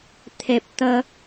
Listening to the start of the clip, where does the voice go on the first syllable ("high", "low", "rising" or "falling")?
low